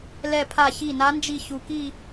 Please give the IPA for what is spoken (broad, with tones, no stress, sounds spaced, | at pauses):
l ɛ˧˩ pʰ a˧˩ ç i˧˩ n a˨˦ n d͡ʒ i˧˩ ç u˧˩ k i˥˧